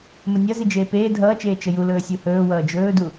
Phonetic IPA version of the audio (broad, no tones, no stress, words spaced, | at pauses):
mənʲʌzi d͡ʒeːpeː dʱʌːt͡ʃeː t͡ʃəju lɵːsʲuhɵː wʌːd͡ʒɵːdu